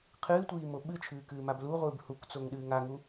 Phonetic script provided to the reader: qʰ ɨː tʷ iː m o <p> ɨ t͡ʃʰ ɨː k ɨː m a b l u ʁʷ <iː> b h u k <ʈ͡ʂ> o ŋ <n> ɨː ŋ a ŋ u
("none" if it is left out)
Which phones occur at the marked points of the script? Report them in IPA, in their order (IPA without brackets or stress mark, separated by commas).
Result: ɓ, ɨː, t͡s, ɗ